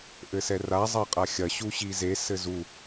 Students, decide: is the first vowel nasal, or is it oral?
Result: oral